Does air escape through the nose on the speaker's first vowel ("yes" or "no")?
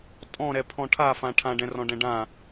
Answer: yes